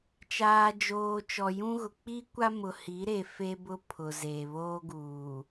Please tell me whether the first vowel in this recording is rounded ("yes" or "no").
no